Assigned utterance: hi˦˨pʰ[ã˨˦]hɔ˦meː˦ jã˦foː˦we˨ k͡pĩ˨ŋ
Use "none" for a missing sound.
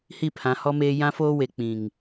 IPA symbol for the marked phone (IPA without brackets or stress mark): ã˨˦